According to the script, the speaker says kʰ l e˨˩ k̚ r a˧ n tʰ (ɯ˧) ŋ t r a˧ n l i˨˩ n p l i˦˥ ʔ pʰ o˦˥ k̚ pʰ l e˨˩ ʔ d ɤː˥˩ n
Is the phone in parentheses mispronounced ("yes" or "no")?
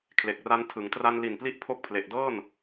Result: yes